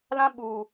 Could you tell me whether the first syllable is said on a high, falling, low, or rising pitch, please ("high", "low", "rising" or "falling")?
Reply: high